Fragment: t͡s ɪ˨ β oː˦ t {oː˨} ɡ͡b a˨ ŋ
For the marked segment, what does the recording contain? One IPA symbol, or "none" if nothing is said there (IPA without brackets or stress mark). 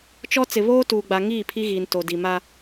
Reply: uː˨